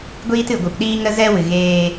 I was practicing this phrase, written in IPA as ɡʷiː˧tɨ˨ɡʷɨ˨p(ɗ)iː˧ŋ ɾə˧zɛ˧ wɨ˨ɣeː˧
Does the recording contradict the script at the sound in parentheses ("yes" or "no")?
no